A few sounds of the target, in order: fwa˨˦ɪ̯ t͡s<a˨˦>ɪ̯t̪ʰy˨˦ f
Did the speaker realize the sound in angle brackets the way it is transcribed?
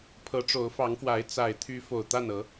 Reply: no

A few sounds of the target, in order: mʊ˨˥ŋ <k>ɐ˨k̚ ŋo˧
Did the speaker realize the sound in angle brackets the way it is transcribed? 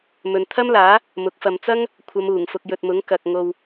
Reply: yes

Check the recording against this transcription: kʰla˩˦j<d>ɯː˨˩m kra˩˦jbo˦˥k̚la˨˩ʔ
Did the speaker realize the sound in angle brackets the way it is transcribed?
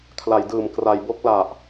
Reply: yes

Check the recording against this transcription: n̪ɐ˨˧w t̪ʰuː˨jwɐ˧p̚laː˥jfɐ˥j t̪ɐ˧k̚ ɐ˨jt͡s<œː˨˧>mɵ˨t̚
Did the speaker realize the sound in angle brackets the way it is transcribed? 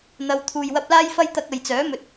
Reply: no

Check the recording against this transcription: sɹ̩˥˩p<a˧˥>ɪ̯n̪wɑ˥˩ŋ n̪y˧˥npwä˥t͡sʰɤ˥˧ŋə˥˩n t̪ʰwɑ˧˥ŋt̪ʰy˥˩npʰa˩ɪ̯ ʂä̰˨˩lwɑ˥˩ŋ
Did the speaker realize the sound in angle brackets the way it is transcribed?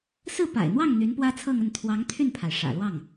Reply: no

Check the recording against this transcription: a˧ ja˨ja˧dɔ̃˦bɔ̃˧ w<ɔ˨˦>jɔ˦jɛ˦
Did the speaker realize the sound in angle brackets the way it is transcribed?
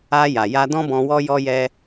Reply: no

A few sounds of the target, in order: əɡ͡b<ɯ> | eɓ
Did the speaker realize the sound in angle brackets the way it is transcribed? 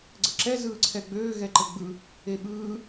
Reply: yes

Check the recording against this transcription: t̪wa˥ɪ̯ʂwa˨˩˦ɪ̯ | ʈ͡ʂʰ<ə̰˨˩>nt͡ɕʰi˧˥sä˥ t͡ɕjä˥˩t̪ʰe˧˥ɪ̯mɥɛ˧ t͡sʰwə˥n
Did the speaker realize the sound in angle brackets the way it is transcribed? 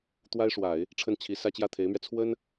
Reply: no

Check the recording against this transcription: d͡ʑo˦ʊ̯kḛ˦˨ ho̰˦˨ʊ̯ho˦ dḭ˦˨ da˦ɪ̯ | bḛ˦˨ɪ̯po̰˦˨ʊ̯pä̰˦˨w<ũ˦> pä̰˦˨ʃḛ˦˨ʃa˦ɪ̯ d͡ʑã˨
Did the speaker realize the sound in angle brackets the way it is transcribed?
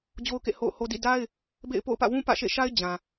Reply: yes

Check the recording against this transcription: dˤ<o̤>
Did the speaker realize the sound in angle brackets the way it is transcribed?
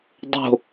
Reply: yes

